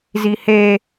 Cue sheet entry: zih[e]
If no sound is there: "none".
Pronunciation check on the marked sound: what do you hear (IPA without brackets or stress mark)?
e